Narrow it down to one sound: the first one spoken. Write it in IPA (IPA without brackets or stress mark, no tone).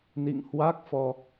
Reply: n